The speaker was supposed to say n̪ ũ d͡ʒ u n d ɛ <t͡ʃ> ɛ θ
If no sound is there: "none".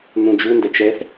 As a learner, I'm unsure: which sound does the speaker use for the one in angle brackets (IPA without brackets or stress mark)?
t͡ʃ